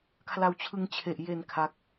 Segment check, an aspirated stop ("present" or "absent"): present